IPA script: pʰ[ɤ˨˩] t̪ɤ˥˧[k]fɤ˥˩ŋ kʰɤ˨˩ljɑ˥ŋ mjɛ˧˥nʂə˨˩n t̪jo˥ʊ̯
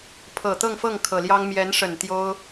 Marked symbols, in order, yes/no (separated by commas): yes, no